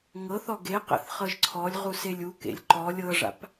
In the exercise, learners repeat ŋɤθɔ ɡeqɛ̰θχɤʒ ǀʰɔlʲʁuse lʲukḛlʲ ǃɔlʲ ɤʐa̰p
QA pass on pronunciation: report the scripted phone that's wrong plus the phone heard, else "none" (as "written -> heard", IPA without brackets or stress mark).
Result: none